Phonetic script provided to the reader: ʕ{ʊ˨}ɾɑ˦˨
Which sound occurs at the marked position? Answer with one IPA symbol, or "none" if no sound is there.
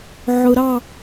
ʊ˨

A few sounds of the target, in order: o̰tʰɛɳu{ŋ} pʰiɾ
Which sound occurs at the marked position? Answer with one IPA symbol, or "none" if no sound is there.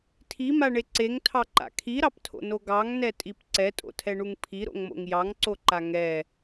ŋ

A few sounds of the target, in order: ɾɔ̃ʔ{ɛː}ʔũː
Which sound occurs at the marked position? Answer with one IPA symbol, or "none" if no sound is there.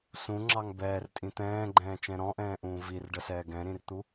ɛ̃ː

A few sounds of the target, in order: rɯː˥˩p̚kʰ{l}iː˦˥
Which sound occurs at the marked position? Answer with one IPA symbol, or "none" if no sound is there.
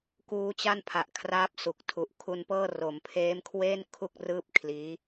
l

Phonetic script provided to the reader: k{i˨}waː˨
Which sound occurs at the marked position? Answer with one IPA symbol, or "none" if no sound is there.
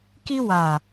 i˦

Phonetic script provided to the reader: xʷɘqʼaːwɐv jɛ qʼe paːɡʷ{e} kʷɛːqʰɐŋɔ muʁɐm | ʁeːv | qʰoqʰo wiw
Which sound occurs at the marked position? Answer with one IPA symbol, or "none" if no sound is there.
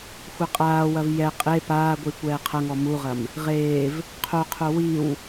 i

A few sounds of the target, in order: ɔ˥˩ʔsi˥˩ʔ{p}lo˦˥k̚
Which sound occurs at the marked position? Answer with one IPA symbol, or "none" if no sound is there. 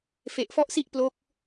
p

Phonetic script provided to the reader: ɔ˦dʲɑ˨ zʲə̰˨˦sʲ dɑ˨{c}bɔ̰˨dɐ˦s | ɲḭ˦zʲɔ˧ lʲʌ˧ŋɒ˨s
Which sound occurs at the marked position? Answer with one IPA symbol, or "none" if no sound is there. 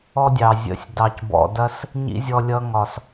c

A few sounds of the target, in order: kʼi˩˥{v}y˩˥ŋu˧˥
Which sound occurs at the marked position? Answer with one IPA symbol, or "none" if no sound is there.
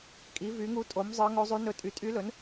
v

